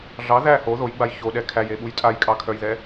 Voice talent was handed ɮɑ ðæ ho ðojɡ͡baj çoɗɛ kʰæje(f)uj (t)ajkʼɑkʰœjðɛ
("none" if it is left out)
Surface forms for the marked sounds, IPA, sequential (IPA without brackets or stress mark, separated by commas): ɓ, tʼ